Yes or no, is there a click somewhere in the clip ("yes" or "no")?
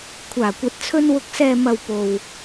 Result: no